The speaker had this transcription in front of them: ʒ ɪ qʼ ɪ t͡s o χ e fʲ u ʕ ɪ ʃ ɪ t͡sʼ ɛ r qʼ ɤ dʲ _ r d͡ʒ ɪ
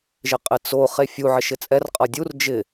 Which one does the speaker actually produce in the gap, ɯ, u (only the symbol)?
u